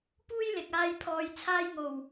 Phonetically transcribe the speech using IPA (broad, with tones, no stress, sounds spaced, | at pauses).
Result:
p uː˥ j l ɪ˨ k̚ aː˧ j pʰ ɔː˨ j t͡sʰ aː˧ j ŋ o˨˩ w